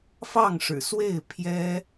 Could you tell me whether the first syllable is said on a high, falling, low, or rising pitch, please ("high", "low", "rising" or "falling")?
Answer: falling